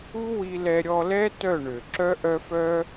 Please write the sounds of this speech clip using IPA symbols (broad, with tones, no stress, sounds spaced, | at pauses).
u˦ w i˧ l ɛ˧ ɾʲ ɔ˧ l ɛ˦ t œ˦˨ ɳ ø˨ ǁ œ˦ ʔ œ˦ f œ˦